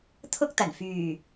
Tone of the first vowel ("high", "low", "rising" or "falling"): high